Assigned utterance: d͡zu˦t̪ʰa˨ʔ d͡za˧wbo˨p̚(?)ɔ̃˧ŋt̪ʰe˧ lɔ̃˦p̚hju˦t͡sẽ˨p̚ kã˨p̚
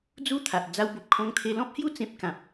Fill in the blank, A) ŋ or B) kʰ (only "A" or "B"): B